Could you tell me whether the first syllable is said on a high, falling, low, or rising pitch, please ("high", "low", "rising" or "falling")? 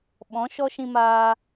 rising